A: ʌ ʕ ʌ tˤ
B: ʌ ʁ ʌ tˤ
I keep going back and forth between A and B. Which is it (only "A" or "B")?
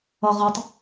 B